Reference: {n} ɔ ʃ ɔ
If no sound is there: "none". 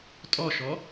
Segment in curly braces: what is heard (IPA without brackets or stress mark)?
tʼ